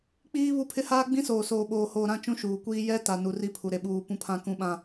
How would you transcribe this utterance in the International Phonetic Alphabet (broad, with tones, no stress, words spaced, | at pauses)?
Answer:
k͡piː˦ βu˦pʰɪ˦ haː˦ɡ͡bĩ˦soː˨ soː˨ɓoː˨hoː˨ ɾã˦t͡ʃũ˦ʃuː˨kʷiː˦ jɛ˦ta˨ nu˨ri˦pʰu˨ ɾe˨ɓuː˨ pũ˦pʰã˦kũ˦ɓã˦